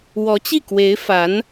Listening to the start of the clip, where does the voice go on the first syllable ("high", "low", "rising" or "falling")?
rising